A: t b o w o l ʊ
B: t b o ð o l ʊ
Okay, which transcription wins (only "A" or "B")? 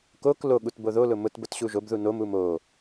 B